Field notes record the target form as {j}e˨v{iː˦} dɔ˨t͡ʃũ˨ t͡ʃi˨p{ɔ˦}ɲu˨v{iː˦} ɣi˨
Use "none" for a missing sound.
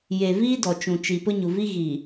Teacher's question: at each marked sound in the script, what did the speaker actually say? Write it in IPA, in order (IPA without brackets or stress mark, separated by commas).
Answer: j, iː˦, ʊ˦, i˦